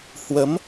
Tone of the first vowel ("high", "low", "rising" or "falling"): rising